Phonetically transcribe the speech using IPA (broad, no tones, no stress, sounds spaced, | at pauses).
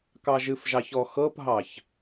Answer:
k ɑ ʒ ɨ f ʒ ɑ ç ɔ x ɤ p ɦ ɑ ç